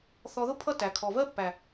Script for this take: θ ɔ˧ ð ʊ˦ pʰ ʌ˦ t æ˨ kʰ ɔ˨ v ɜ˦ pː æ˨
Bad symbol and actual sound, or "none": none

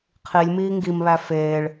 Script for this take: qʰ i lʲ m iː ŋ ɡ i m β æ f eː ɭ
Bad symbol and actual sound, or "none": none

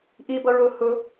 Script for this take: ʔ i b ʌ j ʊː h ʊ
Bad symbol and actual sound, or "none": j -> ɹ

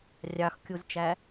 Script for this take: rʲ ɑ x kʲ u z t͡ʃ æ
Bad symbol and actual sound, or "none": none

